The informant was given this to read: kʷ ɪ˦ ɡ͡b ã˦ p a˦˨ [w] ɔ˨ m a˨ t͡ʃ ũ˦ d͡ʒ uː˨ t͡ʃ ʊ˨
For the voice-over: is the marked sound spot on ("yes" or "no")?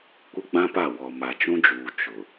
yes